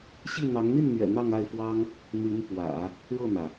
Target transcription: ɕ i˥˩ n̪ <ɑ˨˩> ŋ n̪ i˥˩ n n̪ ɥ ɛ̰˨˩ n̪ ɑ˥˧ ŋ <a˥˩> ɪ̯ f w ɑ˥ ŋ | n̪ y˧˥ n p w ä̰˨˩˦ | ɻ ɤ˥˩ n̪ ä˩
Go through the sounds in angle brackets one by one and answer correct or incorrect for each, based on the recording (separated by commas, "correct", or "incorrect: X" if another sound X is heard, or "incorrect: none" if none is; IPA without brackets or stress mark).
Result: incorrect: ɑ˧˥, correct